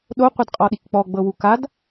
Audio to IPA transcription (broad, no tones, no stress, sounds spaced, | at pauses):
ɗ o qʷ ɛ d qʼ ɔ ɗ i k k͡p ɔ ɡ͡b ɤ w u k a d